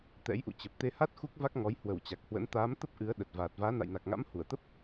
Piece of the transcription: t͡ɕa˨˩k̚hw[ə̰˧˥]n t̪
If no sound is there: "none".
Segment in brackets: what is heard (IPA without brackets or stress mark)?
ə̰˧˥